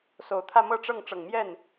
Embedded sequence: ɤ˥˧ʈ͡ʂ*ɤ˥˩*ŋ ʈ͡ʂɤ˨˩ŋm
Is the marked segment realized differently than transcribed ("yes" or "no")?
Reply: no